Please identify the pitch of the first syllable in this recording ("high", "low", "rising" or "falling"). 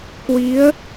rising